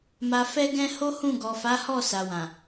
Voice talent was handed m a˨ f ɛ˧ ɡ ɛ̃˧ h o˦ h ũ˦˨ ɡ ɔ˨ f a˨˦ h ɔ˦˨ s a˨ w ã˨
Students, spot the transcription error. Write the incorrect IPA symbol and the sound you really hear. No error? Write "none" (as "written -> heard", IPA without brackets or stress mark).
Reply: none